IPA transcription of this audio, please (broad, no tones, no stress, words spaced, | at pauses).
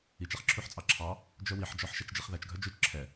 it͡ʃɛχ ǁʰʉħt͡sʼɑǁʰɑ | d͡ʒœwiħd͡ʒɔħʃɛt͡ʃ d͡ʒiχðæt͡ʃɡʱœ d͡ʒʉt͡ʃ ǁʰɛ